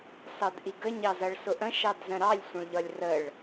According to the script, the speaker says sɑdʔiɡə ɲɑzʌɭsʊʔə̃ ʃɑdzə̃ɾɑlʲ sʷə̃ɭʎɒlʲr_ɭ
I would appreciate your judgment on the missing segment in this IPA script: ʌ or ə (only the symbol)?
ə